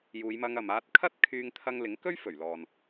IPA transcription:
j uː˨˧ j m ɐ˧ ŋ ɐ˨ m aː˧ t̚ kʰ ɐ˥ t̚ kʰ yː˧ ŋ t̪ʰ ɐ˥ ŋ l ɪ˨˥ ŋ k ɵ˥ ɥ f ɵ˨˩ ɥ l ɔː˨ n

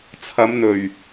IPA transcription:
t͡sʰ ɐ˨˧ m n̪ ɵ˨˩ ɥ

